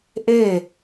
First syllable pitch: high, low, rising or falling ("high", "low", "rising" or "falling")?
falling